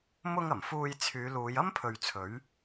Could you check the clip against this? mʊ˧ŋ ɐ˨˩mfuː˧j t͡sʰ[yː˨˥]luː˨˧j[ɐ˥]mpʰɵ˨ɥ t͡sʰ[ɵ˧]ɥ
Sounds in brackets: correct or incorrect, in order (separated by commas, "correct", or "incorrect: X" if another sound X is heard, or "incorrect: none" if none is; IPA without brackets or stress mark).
incorrect: yː˨˧, correct, incorrect: ɵ˨˥